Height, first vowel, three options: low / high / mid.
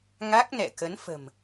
low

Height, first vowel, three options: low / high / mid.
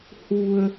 high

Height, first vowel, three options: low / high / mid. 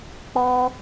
mid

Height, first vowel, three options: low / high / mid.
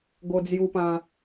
mid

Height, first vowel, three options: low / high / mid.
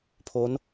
mid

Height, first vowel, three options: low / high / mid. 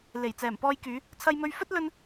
mid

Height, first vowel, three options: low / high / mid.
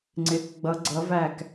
high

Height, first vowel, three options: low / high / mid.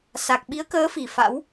low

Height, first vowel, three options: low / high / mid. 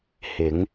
high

